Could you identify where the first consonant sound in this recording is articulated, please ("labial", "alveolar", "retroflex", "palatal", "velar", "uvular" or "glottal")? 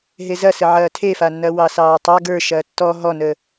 glottal